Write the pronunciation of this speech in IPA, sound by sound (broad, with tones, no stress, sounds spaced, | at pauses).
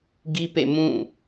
ɡ i˦ p ḛ˦˨ m ũ˦˨